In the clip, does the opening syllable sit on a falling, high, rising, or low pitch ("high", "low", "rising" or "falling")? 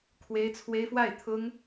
high